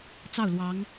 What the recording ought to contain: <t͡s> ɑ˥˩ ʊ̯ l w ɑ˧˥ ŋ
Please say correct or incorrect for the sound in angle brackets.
correct